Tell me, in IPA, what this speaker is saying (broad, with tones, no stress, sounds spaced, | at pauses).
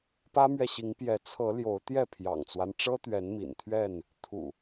p ä˦ m ɥ ɛ˨ ɕ i˨˦ ŋ p j ɛ˨˦ t͡sʰ ɤ˨˦ l j o˨˦ ʊ̯ t̪ j ɛ˥˨ pʰ j ɑ̰˨˩ ŋ t͡s w a˦ n ʈ͡ʂ ɤ˦ t̪ ɥ ɛ˨˦ n m ḭ˨˩ n t̪ʰ ɥ ɛ˥˨ n | t̪ʰ ṵ˨˩